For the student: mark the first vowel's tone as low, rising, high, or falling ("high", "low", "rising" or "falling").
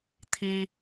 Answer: high